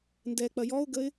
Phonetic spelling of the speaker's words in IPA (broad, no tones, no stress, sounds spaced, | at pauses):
n d ɛ k͡p ɐ j ɔ ʊ̯ ɡ ə ɪ̯